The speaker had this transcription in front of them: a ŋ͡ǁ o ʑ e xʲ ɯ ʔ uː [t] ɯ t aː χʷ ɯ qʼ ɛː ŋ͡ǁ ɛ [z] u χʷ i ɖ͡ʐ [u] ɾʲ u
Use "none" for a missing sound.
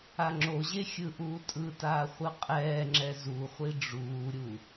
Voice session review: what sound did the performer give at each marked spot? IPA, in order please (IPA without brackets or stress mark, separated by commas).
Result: tʼ, z, uː